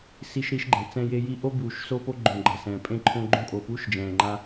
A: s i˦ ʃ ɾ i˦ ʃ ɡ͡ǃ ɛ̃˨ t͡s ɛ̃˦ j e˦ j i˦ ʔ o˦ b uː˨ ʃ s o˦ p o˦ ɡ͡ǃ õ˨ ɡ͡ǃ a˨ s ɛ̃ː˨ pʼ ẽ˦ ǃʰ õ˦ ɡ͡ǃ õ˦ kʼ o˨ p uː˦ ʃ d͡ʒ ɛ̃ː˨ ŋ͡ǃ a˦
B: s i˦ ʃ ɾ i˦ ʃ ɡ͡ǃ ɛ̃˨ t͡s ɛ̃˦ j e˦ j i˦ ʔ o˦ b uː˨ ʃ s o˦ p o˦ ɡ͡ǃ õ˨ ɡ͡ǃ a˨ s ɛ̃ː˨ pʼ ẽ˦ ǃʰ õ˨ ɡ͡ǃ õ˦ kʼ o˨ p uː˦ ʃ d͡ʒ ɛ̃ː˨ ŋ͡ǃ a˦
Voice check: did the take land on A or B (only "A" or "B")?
A